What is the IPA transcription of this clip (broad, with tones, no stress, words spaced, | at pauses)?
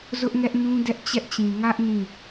zʊ˦ʔŋɛ˦ʔnũ˦ dɛ˦ʔt͡ɕɛ˦ʔt͡ɕĩ˨ ŋä˦ʔ nĩ˦˨